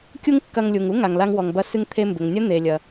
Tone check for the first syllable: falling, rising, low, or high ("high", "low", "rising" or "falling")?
high